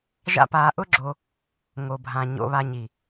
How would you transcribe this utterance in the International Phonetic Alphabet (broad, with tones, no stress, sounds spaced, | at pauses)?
ʒ a̰˦ p aː˧ ʔ ʊ˦ ɡ͡ǁ o˧ | ŋ o˨ bʱ ã˨ ɲ o̰˧ β a˧ ɲ i˨